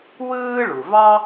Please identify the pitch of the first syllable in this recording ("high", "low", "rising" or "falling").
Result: high